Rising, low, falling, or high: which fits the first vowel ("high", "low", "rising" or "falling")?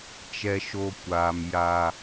high